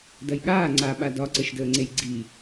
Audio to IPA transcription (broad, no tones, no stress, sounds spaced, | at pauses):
d ɐ j ɠ aː ŋ͡ǀ a ɓ a d ɒ ǀ ə ʃ d əː ŋ͡ǀ e j ɡ͡ǀ i